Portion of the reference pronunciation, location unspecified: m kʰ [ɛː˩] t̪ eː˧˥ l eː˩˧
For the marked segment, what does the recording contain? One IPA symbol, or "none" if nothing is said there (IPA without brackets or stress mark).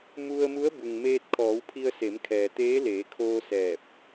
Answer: ɛː˩